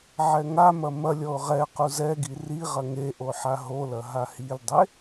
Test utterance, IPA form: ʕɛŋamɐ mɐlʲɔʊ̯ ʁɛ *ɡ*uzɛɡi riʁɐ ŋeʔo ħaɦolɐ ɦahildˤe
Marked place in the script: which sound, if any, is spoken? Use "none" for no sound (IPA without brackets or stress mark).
q